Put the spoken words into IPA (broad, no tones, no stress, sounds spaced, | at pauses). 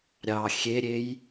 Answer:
ɾʲ ɑ xʲ e ɾʲ e j